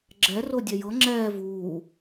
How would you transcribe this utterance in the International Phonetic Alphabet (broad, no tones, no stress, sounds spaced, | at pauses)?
ɡ͡ǁ ɛ r o dʲ ɛ j ɤ ŋ͡ǁ ɛː v uː